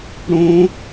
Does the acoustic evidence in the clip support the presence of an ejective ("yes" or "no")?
no